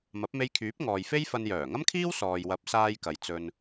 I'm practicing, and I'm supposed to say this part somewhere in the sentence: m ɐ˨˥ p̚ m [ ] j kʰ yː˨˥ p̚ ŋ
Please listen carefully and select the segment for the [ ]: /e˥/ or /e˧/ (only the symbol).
e˧